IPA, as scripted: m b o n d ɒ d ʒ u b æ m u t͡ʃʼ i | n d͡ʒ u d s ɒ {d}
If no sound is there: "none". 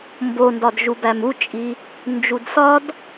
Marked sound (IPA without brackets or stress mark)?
d